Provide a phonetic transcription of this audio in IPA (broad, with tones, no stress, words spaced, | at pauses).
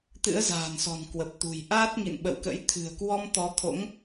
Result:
t̪ɨ̰˧˥ə̯za̤ː˨˩nsɔ̤˨˩n kwə˨˩p̚t̪ṳ˨˩j ʔaː˦˥t̚ŋḭ˧˨nɓə̰˧˨wkə̰˧˥j t̪ʰɨ̤˨˩ə̯kwɔ˧m t̪ɔ˨˦t̪ʰo̰˧˥ŋ